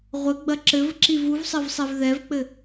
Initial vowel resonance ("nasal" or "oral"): oral